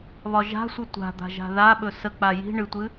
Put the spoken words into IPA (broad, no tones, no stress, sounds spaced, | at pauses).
β ɒ ʒ a̤ sʷ ɨ tʷ a̤ d̪ a̤ ʒ a̤ ð a ɓ ɵ s ə k͡p a j i̤ ɳ ɨ tʷ ɨ